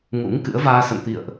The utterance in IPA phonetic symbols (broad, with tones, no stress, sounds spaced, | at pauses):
ŋ ṵ˧˥ ŋ k ɨ̰˧˥ ə̯ v aː˧ s ə̰˧˨ n t̪ ḭ˧˨ ə̯ ʔ